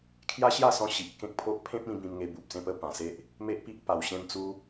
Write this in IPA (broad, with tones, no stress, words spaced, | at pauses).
kʰja˦ɕja˥˧sɔ̃˧ ɕi˨ʔ kẽ˦k̚pʰo˦ʔ pʰẽ˦p̚ĩ˧ bĩ˧mŋe˧ bu˨p̚sẽ˥˧pə˦ pã˨˩se˦ʔ | me˦ʔpi˦ʔ pa˨˩wɕẽ˧mt͡su˧